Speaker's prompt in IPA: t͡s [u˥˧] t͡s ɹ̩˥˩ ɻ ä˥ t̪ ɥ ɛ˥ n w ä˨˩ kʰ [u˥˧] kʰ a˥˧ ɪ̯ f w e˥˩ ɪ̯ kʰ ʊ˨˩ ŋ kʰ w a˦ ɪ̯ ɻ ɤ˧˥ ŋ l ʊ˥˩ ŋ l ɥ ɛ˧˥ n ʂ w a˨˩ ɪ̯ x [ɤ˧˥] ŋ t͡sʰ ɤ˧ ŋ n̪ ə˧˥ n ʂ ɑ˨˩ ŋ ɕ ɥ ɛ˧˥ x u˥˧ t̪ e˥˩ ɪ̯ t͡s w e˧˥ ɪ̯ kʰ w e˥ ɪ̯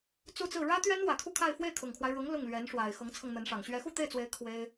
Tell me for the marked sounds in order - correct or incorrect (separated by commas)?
correct, correct, correct